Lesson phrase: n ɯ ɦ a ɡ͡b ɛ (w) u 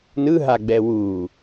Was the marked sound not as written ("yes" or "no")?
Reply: no